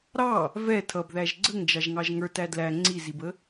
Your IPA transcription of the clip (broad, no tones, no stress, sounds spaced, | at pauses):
ɾ ɑ | v ɛ tʰ ʌ b ð æ ʒ ɡ͡ǀ ə ŋ d͡ʒ ɑ ʒ ŋ ɑ ʒ ŋ ə˞ t æ d l æ ŋ͡ǀ i z i b ə